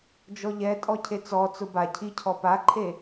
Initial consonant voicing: voiced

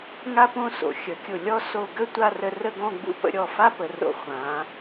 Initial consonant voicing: voiced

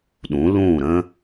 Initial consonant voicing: voiced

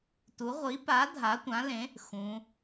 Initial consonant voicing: voiceless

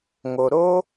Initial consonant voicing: voiced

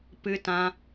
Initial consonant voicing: voiceless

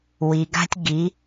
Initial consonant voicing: voiced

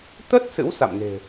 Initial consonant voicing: voiceless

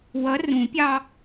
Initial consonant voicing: voiced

